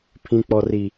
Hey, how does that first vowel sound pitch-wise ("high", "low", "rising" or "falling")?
high